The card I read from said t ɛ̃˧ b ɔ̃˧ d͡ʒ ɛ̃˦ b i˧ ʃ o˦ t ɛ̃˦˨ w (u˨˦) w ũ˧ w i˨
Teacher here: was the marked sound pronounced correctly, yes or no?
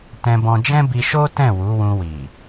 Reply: yes